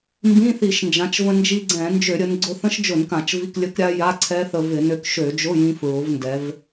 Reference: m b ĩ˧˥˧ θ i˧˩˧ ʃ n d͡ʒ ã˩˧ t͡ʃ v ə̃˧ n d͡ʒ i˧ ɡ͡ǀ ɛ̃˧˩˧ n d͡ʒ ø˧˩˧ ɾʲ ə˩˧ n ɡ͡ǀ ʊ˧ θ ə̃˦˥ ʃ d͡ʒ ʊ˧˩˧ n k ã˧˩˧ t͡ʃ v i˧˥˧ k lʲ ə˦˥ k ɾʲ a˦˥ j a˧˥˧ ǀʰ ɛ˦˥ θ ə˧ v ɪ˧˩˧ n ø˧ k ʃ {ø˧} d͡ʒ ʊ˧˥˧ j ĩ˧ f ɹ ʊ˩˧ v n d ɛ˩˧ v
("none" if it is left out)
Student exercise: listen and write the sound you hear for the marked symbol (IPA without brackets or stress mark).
ø˧˩˧